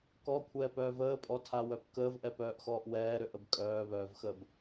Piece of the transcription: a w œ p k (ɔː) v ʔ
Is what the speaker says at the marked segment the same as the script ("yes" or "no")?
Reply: no